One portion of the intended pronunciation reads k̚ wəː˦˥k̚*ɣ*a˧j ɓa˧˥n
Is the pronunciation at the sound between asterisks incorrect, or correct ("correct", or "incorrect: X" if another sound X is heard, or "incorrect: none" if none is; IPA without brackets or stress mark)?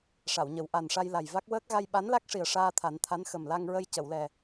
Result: correct